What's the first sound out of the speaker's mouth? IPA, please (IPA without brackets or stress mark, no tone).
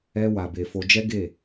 ɛ